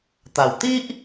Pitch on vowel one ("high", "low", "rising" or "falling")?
low